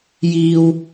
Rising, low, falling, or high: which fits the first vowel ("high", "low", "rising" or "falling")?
low